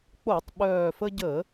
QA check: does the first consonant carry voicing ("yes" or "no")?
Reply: no